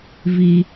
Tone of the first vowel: high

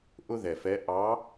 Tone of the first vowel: high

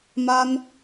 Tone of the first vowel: high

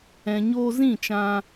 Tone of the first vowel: low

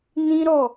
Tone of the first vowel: high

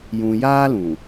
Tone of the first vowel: low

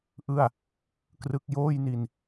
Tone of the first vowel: falling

